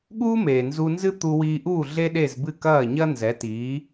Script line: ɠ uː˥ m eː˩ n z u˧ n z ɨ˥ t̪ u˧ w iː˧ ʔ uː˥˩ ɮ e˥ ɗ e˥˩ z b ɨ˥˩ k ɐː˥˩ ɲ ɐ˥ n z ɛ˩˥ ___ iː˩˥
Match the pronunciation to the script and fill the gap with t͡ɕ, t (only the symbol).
t